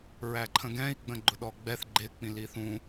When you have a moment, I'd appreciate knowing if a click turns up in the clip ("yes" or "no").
yes